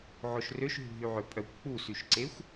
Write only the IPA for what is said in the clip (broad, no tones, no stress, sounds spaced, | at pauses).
ʕ o ʃ r ø ʃ ɦ ṳ ɦ y ʕ ø pʼ œ kʷ k͡p u s y ʃ ǀ e xʷ